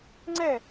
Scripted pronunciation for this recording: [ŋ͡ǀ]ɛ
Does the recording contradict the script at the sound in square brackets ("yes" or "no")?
no